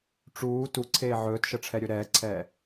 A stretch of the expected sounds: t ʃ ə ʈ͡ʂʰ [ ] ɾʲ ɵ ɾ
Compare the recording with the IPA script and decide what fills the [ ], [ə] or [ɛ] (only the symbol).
ɛ